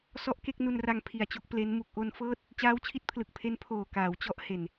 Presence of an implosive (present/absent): absent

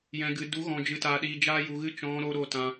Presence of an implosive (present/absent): present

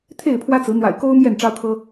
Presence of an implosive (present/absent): absent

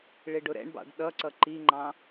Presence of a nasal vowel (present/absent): present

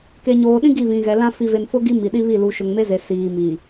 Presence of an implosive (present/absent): present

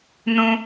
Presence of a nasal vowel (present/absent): present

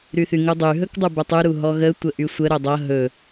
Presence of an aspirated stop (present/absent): absent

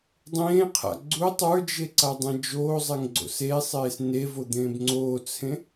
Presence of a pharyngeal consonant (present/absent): absent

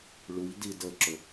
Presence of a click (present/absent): present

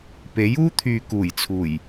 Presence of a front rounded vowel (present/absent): present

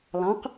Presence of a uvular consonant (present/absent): present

